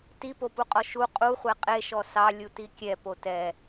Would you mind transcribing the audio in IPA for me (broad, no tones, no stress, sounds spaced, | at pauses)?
t i p o p u qʼ ɔ ʃ u qʼ u χʷ ɛ qʼ e ʃ ɔ s ɑ lʲ u t i kʲ ɛ p o t ɛ